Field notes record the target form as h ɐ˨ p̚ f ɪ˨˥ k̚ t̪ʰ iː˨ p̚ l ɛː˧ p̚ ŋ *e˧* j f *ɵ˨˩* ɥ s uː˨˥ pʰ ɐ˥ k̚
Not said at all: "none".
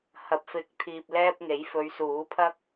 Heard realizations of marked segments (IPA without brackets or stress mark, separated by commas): e˨˥, ɵ˨˧